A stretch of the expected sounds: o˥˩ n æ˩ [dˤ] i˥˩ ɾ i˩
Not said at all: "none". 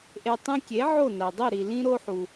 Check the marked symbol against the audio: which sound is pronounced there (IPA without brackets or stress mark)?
dˤ